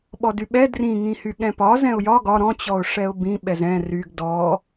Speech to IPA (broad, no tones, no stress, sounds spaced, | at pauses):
ɓ ɔ d y ɓ ɛ d r ĩ ŋ ĩ h y ɠ ɛ̃ p ɒ z ɛ̃ ʊ̯ j ɒ ɡ ɒ ɾ ɔ̃ t͡ɕ ɔ ʊ̯ ʂ ɛ ʊ̯ b ĩ ɓ ɛ z ɛ̃ r y ɡ d ɔ